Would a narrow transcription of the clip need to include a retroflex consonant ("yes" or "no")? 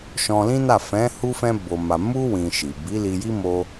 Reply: no